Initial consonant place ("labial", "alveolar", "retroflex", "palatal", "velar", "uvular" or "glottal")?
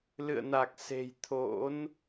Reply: alveolar